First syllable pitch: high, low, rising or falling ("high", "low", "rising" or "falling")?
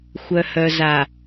low